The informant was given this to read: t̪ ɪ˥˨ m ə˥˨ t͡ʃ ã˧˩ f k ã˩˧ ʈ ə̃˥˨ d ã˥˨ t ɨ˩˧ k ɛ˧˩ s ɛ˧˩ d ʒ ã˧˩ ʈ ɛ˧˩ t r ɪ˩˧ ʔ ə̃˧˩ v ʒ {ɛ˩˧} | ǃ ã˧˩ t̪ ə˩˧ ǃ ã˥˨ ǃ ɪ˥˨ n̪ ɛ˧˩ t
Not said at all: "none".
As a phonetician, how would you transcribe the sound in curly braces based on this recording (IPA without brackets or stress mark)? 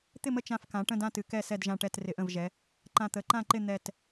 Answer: ɛ˩˧